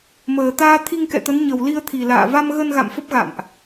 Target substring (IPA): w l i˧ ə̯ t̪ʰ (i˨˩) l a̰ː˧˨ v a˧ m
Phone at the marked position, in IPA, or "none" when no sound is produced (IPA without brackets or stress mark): i˨˩